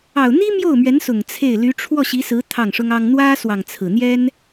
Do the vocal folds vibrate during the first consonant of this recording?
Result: yes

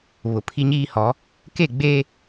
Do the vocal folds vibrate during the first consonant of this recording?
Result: yes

